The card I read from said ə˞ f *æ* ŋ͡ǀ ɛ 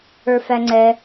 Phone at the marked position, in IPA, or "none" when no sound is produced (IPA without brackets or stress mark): æ